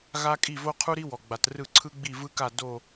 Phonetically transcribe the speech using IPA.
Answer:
ɣa˧ kʼi˧˩vo˧qʰu˧ɾi˧ wɔ˩ɡ͡ba˩trɯ˧˩ ǀʰɯ˧ɡ͡bi˧˩vɯ˧ka˧˩ do˧˩

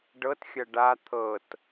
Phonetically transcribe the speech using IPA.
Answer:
ɖɤtxʲɐ ɖa t̪ʰɤt

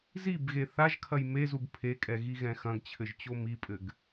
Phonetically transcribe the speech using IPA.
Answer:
zibɣe θaʒkʰɐj mezub pʰekʼɛɣiɣɛ̃ xɐ̃ɡt͡ɕʰɘʒt͡ɕo mipʼɘɡ

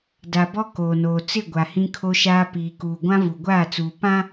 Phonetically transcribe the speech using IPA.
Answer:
da˨bɔ˦ koː˨noː˨ t͡sɪ˦˨ ɡʷa˨hĩ˦kʰo˦ʃaː˦ piː˨kuː˨ ɡʷã˦vu˨ɡʷaː˦˨t͡suː˨ pã˦

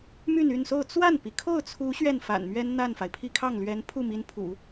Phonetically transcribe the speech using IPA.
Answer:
my˥˧ny˥˧nso˥˧ʊ̯ t͡swa˥˩npi˩ kʰo˥˩ʊ̯t͡sʰu˧˥ ɕɥɛ˥˩nfa̰˨˩nmɥɛ˥n n̪a˥˩nfa˩ɪ̯pʰi˥˧ kʰɑ˥˩ŋlɥɛ˧˥npʰu˥˩mi˧˥n pʰṵ˨˩˦

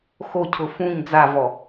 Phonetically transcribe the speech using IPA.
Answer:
xocʰʊ fũɲ d͡zavɔ

